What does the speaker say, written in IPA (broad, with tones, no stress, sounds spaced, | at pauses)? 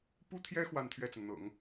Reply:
p u˥ t̪ʰ j ɛ˥ x w a˥˧ n t̪ʰ ɥ ɛ˥˩ t͡s ə˩ n n̪ ɤ̰˨˩˦ ŋ